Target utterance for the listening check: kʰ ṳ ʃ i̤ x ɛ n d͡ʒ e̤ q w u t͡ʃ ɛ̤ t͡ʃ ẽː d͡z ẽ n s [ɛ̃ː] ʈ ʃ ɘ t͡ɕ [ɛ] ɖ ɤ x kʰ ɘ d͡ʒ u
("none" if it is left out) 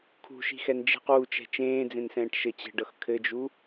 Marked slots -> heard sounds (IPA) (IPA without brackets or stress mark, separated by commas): ɛ̃ː, ɛ̤